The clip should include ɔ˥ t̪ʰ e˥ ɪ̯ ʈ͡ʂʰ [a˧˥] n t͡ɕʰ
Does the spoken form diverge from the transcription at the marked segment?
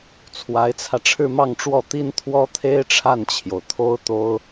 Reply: yes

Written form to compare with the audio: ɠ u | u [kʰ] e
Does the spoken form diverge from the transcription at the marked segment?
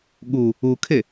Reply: no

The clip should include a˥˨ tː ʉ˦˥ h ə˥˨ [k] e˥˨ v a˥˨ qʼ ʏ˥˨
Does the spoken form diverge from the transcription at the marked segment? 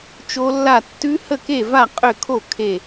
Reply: no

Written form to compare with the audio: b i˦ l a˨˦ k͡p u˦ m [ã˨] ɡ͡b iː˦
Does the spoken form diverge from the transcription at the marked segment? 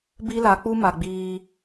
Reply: yes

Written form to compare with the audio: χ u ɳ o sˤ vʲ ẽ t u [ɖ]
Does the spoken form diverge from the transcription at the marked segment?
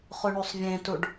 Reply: no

